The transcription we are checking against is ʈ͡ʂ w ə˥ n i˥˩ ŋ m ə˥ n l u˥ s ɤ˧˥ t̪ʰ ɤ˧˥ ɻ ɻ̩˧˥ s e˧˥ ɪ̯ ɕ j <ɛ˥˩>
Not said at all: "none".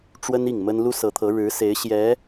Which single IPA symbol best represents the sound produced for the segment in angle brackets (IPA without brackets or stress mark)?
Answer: ɛ˧˥